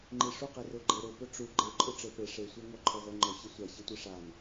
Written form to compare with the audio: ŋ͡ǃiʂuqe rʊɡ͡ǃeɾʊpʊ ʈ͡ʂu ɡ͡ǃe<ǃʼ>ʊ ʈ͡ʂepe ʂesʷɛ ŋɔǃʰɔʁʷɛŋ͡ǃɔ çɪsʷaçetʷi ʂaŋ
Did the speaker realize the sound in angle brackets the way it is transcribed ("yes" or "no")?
yes